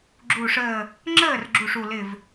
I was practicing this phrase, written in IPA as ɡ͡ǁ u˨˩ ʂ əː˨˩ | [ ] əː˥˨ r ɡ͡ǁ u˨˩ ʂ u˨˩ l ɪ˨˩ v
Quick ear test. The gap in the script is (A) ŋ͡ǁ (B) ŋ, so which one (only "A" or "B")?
A